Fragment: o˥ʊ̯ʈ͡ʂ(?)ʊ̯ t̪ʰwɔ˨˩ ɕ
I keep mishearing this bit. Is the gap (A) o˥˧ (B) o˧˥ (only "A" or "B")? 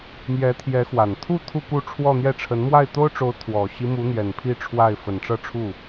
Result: B